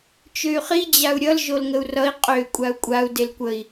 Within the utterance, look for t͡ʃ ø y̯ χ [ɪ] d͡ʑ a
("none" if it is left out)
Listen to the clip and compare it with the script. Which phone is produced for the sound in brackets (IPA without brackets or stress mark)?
i